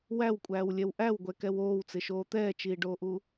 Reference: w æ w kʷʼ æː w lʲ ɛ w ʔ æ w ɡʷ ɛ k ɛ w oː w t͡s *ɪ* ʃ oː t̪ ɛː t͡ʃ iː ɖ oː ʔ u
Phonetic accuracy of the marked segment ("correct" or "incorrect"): correct